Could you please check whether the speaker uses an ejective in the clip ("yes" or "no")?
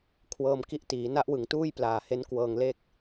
no